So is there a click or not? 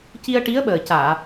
no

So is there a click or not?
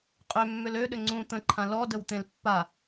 yes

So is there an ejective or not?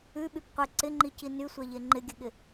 no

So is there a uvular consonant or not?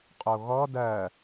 yes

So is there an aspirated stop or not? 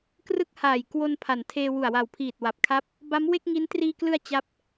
yes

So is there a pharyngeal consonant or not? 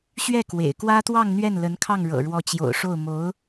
no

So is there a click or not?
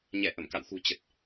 no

